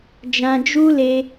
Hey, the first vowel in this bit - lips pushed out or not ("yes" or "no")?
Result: no